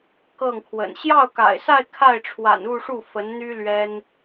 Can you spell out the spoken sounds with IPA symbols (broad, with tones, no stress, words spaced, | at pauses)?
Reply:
kɤ˥˩ŋkʰwə̰˨˩n ɕjɑ˥˩ʊ̯ka̰˨˩ɪ̯sa˥˧ɪ̯ kʰa˥˩ɪ̯ʈ͡ʂʰwa̰˨˩n u˥˧ʂu˥˩ fə˧˥n n̪y˥ lɥɛ˥n